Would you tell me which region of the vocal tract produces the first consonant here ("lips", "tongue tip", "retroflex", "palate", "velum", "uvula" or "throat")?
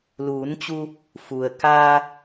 tongue tip